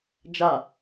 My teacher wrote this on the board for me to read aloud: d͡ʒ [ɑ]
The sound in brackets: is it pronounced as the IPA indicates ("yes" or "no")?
no